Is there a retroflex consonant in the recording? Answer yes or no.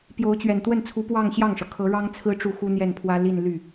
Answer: yes